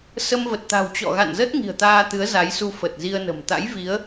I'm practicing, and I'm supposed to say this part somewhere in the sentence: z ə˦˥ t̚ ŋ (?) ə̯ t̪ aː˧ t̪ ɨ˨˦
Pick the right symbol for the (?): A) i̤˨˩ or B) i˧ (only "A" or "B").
A